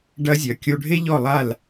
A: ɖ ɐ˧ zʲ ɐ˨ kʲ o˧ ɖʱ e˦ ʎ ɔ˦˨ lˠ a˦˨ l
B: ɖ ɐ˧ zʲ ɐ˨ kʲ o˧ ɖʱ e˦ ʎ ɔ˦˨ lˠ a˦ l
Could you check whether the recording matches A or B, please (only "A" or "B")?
A